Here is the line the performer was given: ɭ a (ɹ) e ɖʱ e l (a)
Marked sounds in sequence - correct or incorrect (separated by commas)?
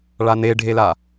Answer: incorrect, correct